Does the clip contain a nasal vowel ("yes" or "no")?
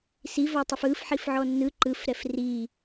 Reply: no